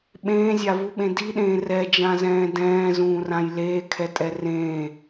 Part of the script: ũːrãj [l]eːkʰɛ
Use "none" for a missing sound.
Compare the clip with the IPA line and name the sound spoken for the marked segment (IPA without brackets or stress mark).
l